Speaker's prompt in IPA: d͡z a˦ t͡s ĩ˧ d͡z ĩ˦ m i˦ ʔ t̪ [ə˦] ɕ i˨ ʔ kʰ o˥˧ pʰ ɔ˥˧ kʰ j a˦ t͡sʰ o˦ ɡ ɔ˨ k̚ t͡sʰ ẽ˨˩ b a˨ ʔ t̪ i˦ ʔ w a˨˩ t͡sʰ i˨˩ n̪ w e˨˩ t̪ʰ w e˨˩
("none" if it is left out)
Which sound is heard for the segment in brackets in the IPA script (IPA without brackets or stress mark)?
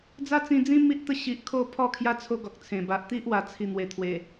ə˥˧